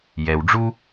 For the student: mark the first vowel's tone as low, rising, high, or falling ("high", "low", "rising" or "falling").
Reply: low